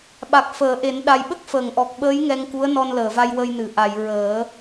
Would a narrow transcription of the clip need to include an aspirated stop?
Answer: no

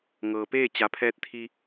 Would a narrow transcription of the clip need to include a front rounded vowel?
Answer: no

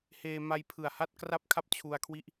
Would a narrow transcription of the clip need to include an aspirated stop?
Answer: yes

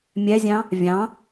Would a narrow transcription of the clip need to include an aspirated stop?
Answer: no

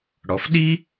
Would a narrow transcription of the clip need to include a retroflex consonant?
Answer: yes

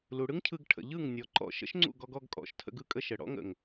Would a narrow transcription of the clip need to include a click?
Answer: yes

